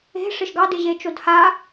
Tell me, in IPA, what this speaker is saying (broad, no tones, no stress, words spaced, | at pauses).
e̤ʂɪʃ ɡɑdɪ ʑet͡ʃodha